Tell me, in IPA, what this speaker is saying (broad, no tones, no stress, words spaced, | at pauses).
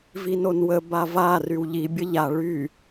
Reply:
vinonwə bava rywʎi bʲəʎa ɭy